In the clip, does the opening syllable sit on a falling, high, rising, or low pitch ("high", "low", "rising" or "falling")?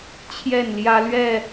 falling